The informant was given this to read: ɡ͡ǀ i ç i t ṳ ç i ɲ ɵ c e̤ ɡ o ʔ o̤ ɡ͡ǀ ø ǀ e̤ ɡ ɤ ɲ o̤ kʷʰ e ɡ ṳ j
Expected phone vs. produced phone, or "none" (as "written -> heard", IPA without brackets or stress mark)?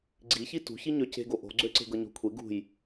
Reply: ɵ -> ø